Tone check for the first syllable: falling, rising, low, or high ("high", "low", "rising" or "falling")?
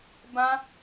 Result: high